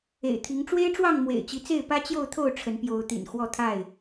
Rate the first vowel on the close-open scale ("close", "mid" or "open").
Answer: mid